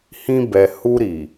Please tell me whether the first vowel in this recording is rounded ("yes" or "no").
no